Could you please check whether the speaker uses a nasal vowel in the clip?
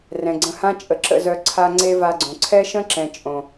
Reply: yes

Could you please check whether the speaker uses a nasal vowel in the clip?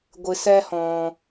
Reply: yes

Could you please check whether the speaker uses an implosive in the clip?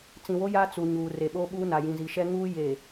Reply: yes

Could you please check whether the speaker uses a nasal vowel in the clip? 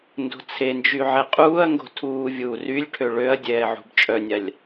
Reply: no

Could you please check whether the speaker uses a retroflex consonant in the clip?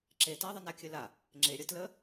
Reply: no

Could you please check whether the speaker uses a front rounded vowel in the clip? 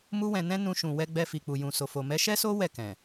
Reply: no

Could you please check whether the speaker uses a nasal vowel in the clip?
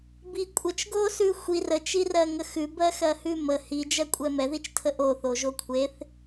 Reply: no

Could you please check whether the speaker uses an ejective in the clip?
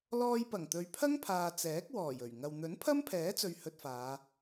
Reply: no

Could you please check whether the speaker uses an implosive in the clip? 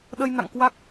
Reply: yes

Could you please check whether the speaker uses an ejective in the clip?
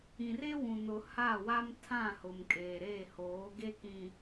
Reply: yes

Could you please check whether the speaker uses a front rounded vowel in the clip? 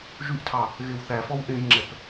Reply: yes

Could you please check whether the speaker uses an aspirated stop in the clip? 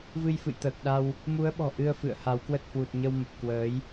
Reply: no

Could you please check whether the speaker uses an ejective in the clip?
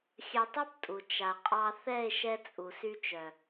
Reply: yes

